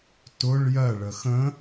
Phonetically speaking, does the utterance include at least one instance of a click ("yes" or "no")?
no